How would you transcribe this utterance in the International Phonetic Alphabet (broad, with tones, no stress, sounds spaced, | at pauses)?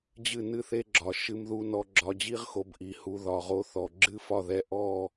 d͡ʑ ɨ˦˨ n ɨ˦ θ e˦ ɡ͡ǁ ɒ˨ ʃ ɨ˧ m ð u˧ n ɔ˧ ɡ͡ǁ ɒ˧ d͡ʑ i˦ ʁ x o˨˦ b ʔ i˨ h u˧ ð ɒ˨ ʁ o˧ θ ɔ˨ ɡ͡ǁ ɨ˦ f ɒ˦˨ ð ɛ˧ ʔ ɔ˦˨